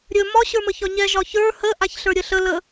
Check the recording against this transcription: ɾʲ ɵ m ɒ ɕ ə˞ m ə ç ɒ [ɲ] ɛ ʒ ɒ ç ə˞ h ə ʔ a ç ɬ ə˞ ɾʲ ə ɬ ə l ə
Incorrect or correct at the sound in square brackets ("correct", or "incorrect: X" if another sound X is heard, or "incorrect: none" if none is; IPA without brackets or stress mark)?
correct